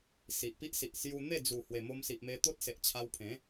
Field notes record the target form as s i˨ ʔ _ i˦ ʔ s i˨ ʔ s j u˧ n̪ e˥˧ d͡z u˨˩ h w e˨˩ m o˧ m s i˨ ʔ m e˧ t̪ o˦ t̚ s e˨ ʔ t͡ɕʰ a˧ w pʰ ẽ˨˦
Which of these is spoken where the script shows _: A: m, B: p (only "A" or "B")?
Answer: B